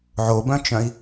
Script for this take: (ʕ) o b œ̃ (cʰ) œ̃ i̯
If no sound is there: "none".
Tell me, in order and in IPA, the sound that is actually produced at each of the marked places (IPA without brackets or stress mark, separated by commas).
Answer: ʕ, t͡ʃ